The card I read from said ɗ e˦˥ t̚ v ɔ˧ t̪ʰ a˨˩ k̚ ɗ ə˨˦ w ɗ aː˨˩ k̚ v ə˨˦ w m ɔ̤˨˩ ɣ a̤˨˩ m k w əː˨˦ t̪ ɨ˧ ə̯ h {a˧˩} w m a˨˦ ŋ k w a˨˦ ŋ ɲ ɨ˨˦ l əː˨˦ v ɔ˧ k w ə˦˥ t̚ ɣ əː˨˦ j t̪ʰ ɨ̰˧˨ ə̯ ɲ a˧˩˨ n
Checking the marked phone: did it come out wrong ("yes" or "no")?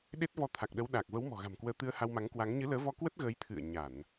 yes